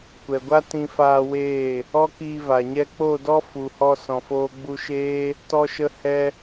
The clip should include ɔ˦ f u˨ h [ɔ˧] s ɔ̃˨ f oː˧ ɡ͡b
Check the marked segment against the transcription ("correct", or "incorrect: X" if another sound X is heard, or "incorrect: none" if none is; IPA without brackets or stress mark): correct